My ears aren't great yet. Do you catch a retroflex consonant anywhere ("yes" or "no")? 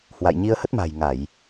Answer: no